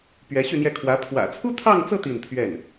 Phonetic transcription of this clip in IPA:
p ɥ ɛ˧˥ ɕ y˥˧ n̪ j ɛ˥˩ kʰ w ä˧˥ pʰ w ä̰˨˩ t͡sʰ u˥ t̪ʰ ɑ˥˧ ŋ t͡s ɤ˥˧ t̪ i˥˧ n pʰ ɥ ɛ˥˩ n

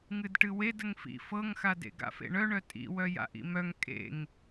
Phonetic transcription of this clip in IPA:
ŋ ɨ d ʈ ɨ w e d ə ŋ f ḭ f ɤ ŋ x a d ḛ ɡ a̰ f ḛ ɳ œ ɳ œ tʼ ḭ w œ j a̰ ʔ ḭ m œ ŋ kʼ ḛ ŋ

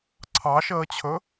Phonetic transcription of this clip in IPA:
ǀʰ ɑ ʃ əː t͡ɕʰ ɵ

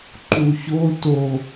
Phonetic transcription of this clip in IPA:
ǃ u ç o t o

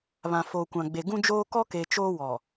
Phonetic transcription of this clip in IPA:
β ã˨ f oː˨ kʷ ã˨ ɡ͡b e˨ ɡ ũ˦ d͡ʒ oː˦ k ɔ˦ k e˨ t͡ʃ oː˦ w ɔ˨

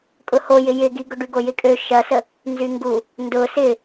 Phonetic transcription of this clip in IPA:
kʼ ʊ h o j ɪ j ɪ ɡ i ɡ ʊ ɖ y ɡ o j ɪ kʼ ø ʃ ɐ s ə | n z y ŋ ɡ u | n d ʊ s ɪ

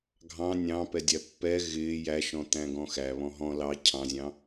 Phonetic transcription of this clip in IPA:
ɡʱ ɑ̃ nʲ ɑ̃ p ɛ dʲ æ pː ɛ ɣ ɪː j æ ʃ ɔ̃ t̪ æ̃ ɡ ɔ̃ x æ β ɔ̃ ɦ ɔ̃ l ɑ cʰ ɑ̃ zʲ ɑ̃

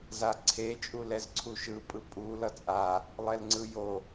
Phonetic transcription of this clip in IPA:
z a ǀʰ e t͡ʃʼ u l ɛ z ǀʰ u ʃ ɯ pʼ ɯ pʼ u l ʌ t͡sʼ a | lˠ ɛ l ŋ͡ǀ ɯ j o

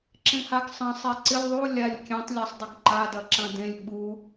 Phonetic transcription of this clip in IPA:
ǁ ẽ h a ɡ sˤ ɐ̃ sˤ e ǀ ɪ lʲ ðˤ u lʲ a lʲ kʲ ẽ tˤ lʲ a sˤ dˤ ɪ ɡ ǃ a d ɐ ǁ ɐ̃ d ẽ lʲ ɓ u

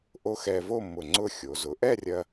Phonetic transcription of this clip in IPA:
ʔ o˥ x ɛ˧ v o˥˧ m ʊ˧˩ ŋ͡ǀ ʊ˥˧ xʲ o˩˧ z ʊ˩˧ ʔ ɛ˥˧ rʲ ɐ˧

